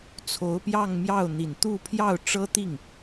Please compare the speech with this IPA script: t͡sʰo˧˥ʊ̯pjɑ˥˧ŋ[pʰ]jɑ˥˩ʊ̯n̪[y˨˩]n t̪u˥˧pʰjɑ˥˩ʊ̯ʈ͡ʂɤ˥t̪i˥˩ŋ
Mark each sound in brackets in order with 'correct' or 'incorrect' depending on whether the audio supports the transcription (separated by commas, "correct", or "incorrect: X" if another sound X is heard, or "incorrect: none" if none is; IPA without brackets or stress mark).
incorrect: m, incorrect: i˨˩